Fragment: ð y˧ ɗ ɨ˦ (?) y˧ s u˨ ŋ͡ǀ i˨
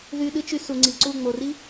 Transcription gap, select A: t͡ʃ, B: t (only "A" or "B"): A